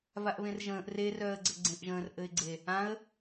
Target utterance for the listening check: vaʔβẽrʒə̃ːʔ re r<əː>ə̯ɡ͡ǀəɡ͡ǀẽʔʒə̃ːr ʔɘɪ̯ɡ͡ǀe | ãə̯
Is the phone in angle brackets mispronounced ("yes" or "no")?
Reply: yes